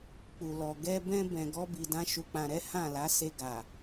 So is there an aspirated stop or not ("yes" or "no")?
no